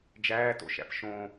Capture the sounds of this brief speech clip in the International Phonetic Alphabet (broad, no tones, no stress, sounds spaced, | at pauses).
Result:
d͡ʒ æː t o̰ ʃ æ̰ p ʃ õ